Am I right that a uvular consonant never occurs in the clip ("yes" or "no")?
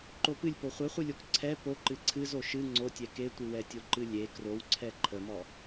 no